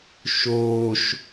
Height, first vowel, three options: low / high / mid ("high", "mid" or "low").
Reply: mid